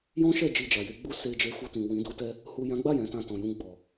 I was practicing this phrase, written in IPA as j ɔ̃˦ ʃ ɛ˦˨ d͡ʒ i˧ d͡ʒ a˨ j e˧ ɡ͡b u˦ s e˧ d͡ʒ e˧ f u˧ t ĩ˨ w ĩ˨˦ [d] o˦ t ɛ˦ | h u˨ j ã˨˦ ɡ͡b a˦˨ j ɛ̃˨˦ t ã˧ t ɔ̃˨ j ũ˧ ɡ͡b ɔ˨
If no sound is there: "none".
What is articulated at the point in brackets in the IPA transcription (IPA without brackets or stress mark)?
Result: d